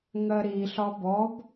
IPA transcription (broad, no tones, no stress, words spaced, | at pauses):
ŋɜɾi ɬɒbɔb